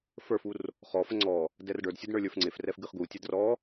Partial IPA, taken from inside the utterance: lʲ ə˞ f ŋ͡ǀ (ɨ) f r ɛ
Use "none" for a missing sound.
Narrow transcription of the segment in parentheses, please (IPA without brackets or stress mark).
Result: e